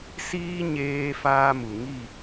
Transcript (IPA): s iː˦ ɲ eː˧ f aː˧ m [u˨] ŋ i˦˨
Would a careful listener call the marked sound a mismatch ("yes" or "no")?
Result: no